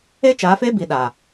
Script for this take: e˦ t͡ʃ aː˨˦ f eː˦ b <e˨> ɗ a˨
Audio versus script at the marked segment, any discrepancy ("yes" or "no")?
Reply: yes